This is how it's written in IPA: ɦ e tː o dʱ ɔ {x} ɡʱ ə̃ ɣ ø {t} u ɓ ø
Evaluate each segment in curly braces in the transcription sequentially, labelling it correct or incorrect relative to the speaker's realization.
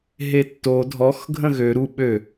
correct, incorrect: ɾ

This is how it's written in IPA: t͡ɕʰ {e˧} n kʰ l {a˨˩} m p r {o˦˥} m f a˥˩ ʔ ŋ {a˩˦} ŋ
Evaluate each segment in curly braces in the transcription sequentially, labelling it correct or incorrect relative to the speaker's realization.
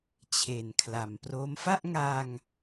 incorrect: e˨˩, incorrect: a˩˦, correct, incorrect: a˧

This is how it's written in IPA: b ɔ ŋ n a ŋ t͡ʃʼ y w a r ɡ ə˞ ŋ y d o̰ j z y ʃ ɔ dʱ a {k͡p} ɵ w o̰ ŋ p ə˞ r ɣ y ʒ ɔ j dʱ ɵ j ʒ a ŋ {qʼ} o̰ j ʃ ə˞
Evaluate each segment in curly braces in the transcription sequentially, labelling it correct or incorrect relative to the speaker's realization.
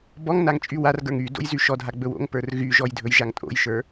incorrect: ɡ͡b, incorrect: tʼ

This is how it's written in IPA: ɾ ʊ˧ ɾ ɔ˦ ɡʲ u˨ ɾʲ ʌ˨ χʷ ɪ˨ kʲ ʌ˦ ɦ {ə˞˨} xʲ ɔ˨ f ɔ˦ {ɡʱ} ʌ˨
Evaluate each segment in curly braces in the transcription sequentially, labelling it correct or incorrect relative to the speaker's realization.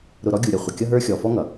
incorrect: ə˞˦, incorrect: ŋ

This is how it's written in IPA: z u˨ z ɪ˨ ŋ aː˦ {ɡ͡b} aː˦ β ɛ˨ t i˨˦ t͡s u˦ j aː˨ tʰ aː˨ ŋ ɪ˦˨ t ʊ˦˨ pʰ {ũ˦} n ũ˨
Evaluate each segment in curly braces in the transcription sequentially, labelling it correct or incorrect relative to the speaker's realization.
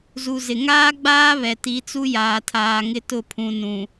correct, incorrect: ũ˨

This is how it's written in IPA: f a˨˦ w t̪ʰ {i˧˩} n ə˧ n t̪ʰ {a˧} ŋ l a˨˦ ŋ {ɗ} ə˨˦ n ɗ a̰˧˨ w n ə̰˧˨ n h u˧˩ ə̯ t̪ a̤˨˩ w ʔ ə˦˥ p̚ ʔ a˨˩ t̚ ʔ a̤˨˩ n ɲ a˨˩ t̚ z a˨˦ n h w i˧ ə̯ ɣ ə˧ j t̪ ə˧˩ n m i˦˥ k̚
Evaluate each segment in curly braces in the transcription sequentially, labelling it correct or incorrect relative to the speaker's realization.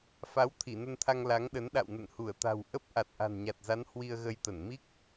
correct, correct, correct

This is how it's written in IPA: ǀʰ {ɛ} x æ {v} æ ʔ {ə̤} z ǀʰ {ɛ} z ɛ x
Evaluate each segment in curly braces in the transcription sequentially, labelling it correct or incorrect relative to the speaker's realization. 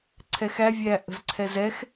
correct, incorrect: vʲ, correct, correct

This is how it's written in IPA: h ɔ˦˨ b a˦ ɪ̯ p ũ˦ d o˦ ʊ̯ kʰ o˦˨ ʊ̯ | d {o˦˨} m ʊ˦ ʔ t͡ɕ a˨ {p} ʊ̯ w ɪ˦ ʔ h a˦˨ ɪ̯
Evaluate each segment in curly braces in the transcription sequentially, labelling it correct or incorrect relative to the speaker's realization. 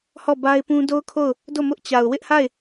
correct, incorrect: none

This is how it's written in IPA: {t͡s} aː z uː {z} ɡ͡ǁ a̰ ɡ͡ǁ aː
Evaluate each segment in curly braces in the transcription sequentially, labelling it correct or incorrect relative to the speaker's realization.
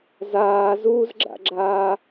incorrect: z, correct

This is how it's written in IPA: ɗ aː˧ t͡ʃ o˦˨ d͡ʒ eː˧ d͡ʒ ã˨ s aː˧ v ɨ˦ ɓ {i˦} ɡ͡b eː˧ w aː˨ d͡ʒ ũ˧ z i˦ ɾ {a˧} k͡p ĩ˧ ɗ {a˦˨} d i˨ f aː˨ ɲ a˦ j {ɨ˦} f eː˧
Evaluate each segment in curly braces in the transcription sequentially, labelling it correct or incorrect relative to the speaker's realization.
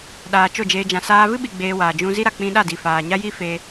incorrect: i˧, correct, correct, incorrect: i˦

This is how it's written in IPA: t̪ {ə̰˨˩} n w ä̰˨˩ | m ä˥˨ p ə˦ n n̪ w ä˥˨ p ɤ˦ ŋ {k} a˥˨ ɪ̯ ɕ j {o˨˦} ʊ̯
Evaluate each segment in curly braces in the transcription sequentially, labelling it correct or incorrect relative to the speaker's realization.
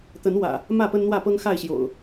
incorrect: ə˨˦, incorrect: x, incorrect: o̰˨˩

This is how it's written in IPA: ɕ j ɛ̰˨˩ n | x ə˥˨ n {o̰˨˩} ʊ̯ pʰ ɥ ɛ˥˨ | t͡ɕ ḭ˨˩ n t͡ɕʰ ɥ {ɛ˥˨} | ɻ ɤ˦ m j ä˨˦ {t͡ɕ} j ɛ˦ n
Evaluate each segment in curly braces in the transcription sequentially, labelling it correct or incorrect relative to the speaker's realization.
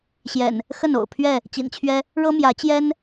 correct, incorrect: ɛ˦, correct

